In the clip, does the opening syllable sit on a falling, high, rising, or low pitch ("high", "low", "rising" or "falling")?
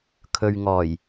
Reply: low